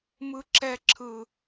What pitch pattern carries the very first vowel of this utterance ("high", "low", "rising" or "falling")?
high